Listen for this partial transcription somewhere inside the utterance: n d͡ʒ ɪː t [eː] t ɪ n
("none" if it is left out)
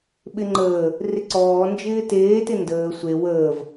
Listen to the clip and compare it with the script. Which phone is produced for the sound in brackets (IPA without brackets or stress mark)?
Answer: eː